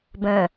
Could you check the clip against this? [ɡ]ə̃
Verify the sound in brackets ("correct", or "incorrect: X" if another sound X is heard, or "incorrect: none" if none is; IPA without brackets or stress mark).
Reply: incorrect: b